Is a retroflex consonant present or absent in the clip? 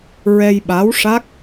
present